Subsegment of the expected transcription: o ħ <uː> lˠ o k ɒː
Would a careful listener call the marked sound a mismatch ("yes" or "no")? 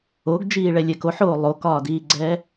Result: yes